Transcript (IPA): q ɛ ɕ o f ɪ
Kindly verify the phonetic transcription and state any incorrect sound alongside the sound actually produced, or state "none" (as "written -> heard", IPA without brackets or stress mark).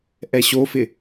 q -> ʔ